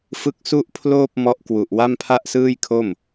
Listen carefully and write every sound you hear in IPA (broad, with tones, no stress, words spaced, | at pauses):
fɯ˦˥k̚su˥˩ʔpʰloː˥˩p̚ mɔ˦˥ʔkwu˨˩ʔ wa˥˩mpʰa˥˩ʔsɯː˥˩j kʰo˥˩m